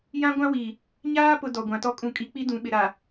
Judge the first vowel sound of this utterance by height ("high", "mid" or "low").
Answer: low